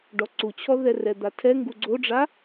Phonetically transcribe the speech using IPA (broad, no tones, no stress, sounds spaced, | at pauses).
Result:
ɖ ɔ ǀ u t͡ɕʰ ɔ ð ɛ r ɛ d̪ a tʰ ɛ ŋ ɡ u ɡ͡ǀ o ɖ͡ʐ a